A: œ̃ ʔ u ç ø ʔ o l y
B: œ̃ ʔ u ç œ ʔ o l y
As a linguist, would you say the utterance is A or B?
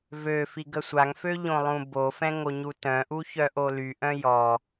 B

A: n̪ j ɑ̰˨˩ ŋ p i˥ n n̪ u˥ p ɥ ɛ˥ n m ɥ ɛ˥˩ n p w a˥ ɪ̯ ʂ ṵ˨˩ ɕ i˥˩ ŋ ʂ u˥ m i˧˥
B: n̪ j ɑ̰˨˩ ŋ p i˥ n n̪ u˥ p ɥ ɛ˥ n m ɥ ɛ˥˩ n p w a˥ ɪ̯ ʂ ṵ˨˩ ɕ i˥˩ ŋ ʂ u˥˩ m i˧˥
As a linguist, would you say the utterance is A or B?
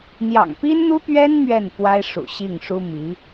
A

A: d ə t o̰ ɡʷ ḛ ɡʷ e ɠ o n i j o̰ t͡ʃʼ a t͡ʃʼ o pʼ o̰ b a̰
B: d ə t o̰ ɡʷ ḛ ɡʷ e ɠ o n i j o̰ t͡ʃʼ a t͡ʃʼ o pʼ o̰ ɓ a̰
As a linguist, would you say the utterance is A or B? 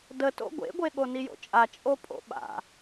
B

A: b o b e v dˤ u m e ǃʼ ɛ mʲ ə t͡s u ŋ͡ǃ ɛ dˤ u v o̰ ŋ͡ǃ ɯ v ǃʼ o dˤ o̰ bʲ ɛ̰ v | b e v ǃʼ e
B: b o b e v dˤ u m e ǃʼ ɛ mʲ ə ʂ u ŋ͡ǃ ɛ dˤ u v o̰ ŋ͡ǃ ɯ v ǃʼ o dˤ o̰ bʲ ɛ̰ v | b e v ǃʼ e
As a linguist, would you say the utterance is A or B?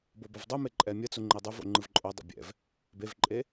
A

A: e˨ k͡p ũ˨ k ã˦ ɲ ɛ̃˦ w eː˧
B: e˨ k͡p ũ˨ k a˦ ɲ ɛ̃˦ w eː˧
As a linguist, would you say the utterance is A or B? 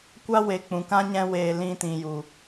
A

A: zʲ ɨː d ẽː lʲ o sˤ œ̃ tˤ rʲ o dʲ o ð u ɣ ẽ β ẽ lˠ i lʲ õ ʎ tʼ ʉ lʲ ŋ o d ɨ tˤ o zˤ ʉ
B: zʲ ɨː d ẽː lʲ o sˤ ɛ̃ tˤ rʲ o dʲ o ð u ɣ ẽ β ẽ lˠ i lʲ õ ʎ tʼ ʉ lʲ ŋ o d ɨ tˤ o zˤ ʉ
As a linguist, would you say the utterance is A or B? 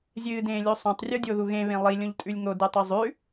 A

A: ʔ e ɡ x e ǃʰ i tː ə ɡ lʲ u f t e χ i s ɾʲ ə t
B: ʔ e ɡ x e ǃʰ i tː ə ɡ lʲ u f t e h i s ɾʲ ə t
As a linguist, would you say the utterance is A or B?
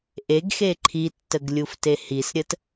B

